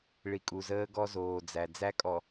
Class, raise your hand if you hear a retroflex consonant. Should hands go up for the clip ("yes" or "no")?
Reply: yes